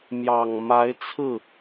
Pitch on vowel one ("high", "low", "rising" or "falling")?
low